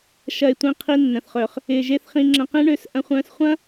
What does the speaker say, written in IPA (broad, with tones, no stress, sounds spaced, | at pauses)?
ʃ ɐ˧ ɪ̯ tʷ ĩ˧ qʰ i˧ nː ə̃˩ θ χ œ˩ χ | ɪː˧ ʒ e˥ θ χ ĩ˧ ŋ͡ǁ ə̃˧ q ĩ˥ ɳ ø˧ s ʔ ɐ̃˧ χʷ œ̃ː˧ s χʷ ɐ̃˥